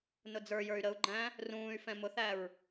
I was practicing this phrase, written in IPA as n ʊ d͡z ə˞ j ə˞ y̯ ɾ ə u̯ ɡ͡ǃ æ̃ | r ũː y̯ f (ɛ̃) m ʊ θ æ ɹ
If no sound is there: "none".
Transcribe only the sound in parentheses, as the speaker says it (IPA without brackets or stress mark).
ɛ̃